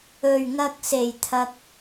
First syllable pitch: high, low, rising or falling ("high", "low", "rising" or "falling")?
low